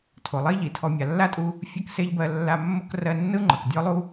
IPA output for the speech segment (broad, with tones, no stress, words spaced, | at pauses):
tʰo˩lˠi˥ʎi˩tʰɔ˧ mʲa˩lːa˥tʼu˧ | fʲɜ˥kse˥ʎbɜ˧ lːa˧mːo˥k rɜ˧ nːɯ˥ŋ͡ǃɤ˩k dʲɔ˥lˠu˥